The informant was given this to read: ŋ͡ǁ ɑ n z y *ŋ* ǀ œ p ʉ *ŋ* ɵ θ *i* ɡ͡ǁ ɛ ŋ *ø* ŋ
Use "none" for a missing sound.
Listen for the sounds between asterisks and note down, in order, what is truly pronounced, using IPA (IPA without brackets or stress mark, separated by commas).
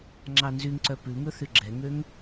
ŋ, ŋ, y, ø